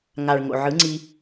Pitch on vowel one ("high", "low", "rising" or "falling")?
low